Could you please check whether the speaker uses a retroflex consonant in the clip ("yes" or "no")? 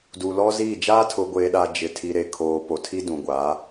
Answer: no